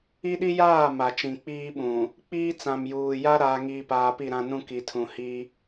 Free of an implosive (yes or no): no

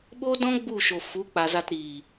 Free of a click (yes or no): yes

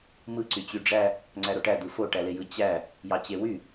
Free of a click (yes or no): no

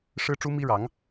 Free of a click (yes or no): yes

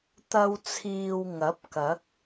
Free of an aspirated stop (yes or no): no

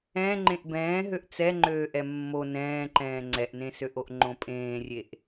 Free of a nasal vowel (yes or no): no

